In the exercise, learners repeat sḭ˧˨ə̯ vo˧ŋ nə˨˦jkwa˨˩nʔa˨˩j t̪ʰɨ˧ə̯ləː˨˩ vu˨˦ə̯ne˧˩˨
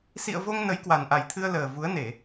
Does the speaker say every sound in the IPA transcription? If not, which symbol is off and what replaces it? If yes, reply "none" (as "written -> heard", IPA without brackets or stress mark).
none